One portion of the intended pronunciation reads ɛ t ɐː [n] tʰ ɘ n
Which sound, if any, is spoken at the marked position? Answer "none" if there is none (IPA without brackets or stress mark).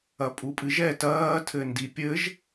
none